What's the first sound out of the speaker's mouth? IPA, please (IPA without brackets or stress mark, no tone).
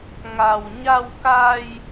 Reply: ŋ